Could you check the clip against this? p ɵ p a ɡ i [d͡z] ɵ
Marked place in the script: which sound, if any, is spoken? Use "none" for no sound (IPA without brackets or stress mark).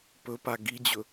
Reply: d͡ʑ